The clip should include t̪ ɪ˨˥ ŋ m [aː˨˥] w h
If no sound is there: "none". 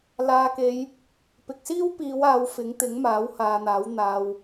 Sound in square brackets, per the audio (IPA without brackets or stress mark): aː˨˥